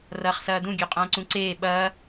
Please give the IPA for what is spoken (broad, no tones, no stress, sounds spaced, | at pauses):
r ɐː χ s ɐː d ũ ɡʲ ø qʼ ɐ̃ː ǀ ũ ǀ eː ɓ ɐː